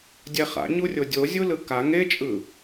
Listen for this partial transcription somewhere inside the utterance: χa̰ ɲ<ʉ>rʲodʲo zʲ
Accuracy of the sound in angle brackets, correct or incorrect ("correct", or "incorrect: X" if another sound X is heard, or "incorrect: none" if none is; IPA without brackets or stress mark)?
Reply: incorrect: u